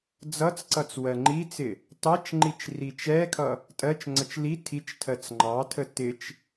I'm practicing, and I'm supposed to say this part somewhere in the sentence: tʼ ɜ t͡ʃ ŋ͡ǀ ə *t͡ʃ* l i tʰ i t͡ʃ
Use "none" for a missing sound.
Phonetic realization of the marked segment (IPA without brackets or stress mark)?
t͡ʃ